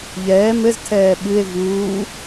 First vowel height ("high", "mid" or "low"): mid